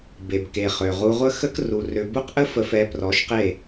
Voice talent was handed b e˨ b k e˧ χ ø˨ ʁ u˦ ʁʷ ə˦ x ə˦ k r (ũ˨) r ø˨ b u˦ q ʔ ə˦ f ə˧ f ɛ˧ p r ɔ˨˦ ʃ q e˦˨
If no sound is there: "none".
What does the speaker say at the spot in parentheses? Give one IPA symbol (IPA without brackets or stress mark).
u˨